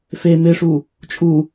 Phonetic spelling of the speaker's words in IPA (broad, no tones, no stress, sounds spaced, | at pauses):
f e m ɪ ʂ u | t͡ʃʼ u